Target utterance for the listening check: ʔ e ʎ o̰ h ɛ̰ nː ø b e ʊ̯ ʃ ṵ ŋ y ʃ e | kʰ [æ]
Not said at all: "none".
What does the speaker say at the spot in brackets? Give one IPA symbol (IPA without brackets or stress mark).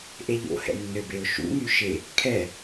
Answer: ɛ